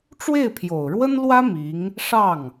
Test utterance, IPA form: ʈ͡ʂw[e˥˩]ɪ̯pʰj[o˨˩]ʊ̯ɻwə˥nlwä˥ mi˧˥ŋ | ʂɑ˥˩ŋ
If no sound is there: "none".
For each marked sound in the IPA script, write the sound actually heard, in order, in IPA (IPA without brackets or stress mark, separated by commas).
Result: e˥˩, o˨˩